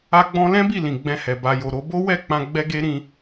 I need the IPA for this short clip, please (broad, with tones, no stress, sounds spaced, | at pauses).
a˦ ɡ͡b ɔ̃˦ l ɛ̃˦ b i˦˨ l ĩ˨ ɡ͡b ɛ̃˧ h ɛ˨ b a˨ j o˨ ɾ o˧ b o˦ w ɛ˦˨ k͡p ã˧ ɡ͡b ɛ˦ ɡ e˦ ɾ ĩ˧